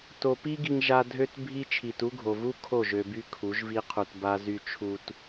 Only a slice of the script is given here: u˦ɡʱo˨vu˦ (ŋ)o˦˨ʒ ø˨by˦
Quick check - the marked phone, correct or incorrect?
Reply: incorrect